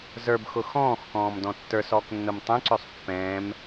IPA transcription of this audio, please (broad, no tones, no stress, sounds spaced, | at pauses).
z ə˞ b x ʊ x ɔ̃ː x k ɔ̃ː m d ɔ̃ tː ə˞ s ɔː k nː ʊ m tˤ ɛ̃ ǀ ø sˤ pː ɛ̃ː m